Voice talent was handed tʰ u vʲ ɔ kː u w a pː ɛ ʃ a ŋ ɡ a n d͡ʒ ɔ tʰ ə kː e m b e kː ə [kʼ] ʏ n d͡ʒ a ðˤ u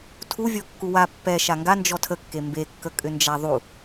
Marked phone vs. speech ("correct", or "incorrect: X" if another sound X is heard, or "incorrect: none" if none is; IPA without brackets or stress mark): correct